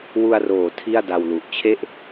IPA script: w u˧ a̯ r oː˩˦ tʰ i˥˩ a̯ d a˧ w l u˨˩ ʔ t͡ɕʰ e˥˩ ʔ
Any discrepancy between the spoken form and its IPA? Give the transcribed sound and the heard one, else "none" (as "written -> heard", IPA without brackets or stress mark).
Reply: none